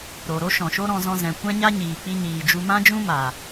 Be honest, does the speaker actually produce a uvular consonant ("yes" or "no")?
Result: no